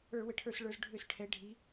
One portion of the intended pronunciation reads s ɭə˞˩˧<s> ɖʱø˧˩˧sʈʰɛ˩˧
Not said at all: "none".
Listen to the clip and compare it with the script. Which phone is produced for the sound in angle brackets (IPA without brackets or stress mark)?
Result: z